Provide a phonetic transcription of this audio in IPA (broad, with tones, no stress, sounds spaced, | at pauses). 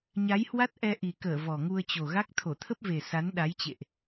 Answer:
ɲ a˨˦ j h w a˦˥ t̚ ʔ ɛ˧ ʔ i˨˩ k əː˧˩ v ɔ˨˩ ŋ u˧ ə̯ t͡ɕ o˨˩ ɣ a˦˥ k̚ t̪ʰ o˧˩ t̪ʰ ə˦˥ p̚ v e˨˩ s a˨˦ n ɗ a˨˦ j t͡ɕ ḛ˧˨ ʔ